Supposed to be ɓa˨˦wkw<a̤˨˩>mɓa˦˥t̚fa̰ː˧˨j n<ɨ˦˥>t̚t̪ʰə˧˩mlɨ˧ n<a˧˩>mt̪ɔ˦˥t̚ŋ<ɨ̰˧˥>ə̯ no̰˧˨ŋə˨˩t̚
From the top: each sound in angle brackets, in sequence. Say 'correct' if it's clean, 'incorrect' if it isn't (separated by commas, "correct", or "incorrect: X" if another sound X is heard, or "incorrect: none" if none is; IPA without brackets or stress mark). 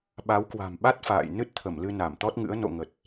correct, correct, correct, correct